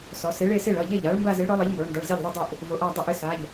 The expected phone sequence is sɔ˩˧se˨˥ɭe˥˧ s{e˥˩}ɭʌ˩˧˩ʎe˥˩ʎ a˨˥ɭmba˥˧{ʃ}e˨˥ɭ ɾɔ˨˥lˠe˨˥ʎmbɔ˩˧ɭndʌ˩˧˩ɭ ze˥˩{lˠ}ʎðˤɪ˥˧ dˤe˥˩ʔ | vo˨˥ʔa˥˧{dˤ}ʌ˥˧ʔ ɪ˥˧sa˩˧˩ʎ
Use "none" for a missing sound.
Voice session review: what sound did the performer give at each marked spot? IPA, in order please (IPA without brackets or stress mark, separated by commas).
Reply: e˥˩, z, none, dˤ